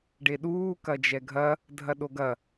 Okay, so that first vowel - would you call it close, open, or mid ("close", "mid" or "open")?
mid